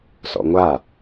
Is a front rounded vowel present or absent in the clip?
absent